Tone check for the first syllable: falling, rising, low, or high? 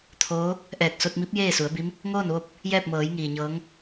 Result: rising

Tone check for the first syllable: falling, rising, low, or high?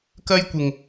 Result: high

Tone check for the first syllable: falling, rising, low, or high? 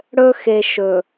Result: high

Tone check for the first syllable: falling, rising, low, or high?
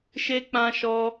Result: high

